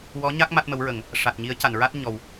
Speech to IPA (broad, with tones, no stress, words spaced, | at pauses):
wɔ˧˥ɲa˦˥k̚ ma˦˥t̚mə˧˥wɹə˨˩˦ŋ | ʂa˨˩t̚ɲi˧˥ə̯ca˨˩˨nɹa˦˥t̚ ɲɔ˨˩w